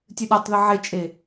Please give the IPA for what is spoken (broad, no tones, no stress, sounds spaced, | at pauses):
tʲ ɨ ɗ a tˤ ð ɨ ʕ e t͡ʃʼ e